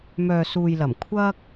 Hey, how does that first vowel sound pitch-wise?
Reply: low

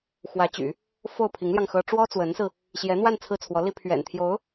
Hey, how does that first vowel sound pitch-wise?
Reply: rising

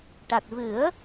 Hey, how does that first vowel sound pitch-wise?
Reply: low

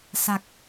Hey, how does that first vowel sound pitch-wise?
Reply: low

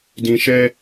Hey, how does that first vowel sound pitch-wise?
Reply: low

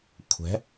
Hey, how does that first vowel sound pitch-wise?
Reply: rising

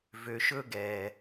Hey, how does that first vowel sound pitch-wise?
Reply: low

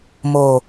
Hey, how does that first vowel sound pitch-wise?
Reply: low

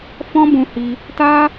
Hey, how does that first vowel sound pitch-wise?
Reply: high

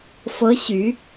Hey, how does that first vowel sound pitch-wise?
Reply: rising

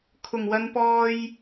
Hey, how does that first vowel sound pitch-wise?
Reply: low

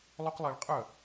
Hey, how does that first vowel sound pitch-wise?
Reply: high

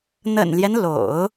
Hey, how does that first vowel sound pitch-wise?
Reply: low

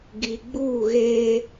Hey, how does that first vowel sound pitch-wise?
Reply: low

